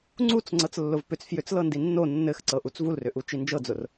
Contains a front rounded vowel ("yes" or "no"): yes